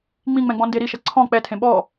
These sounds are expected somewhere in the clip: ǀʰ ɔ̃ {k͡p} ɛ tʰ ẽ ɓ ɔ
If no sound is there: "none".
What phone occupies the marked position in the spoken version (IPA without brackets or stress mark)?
k͡p